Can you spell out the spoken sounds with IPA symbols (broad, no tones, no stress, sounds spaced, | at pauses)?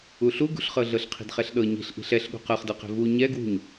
u ɬ u ɡ ṳ ɬ χ ɤ ɮ ɤ ɬ qʰ i̤ d χ ɛ ɬ ɗ ɤ ɲ i̤ ɬ ʔ i̤ ɬ ɛ ɬ ɠ ṳ q ɤ χ d ɤ q ɛ̤ v u ɲ ɛ ɡ w ṳ ɲ